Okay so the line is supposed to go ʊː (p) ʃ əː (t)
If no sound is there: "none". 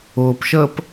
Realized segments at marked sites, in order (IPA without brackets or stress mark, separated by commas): p, p